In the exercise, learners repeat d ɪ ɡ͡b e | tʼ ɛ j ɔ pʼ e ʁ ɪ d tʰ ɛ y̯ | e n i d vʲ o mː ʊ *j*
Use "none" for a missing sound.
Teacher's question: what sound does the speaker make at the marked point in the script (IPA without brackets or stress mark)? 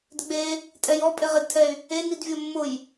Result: j